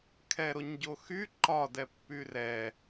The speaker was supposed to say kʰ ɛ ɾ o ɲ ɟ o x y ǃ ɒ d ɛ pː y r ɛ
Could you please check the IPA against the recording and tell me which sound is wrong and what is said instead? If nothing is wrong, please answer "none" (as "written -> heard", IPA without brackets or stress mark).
none